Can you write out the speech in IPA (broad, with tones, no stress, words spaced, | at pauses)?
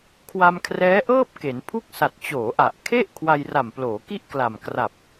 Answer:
kʰwa˧mkʰrɛː˦˥ʔɤː˥˩p̚ ke˩˦npʰu˥˩k̚sa˨˩t̚ t͡ɕoː˩˦ʔa˨˩ʔkʰe˥˩ʔ kʰwa˧jra˨˩mploː˩˦ki˥˩ʔ kla˨˩mkra˨˩p̚